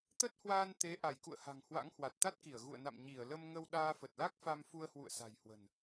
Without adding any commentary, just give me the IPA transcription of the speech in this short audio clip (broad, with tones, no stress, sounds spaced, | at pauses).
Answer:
t̪ ə˦˥ t̚ h w aː˧ n t̪ e˨˦ ʔ a˧˩ j k ṵ˧˨ ə̯ h a̤˨˩ ŋ h w a̰˧˥ ŋ h w a˨˩ t̚ t̪ a˦˥ t̚ k i˧˩ ə̯ ɣ ṵ˧˨ ə̯ n a̰˧˨ m ɲ i˧˩ ə̯ l ə˧ m ŋ ə˧ w ɗ aː˧ f ə˨˩ t̚ l a˦˥ k̚ f a˧ m f u˧ ə̯ h w ṵ˧˨ ə̯ s a̤˨˩ j h w ə̤˨˩ n